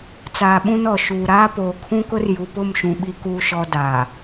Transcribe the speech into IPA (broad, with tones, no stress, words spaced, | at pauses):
t͡saː˨ɓũ˦nɔ˨ ʃuː˨ ɾaː˦poː˨kʰũ˦kʊ˦r ju˨pʊ˦˨mʃũ˨ ɓi˨kuː˨ʃɔ˨ daː˨